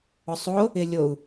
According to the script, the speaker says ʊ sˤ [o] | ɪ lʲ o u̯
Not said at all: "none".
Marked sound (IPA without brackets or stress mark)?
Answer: o